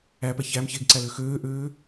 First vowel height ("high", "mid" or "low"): low